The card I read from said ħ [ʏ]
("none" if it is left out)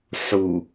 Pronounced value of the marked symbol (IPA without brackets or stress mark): u